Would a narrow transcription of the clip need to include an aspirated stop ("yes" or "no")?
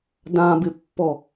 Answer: no